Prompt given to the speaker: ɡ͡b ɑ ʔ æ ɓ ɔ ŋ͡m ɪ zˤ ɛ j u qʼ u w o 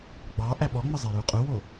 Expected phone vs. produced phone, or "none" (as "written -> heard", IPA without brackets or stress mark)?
none